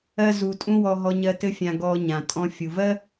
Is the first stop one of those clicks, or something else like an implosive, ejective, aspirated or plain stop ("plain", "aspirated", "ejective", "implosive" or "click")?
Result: ejective